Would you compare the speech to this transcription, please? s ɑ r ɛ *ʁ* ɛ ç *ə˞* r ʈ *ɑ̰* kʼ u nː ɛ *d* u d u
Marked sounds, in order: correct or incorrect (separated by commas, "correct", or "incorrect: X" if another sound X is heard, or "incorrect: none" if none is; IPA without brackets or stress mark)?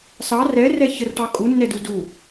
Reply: incorrect: r, incorrect: ə, incorrect: ɑ, correct